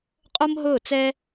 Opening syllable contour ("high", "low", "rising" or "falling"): high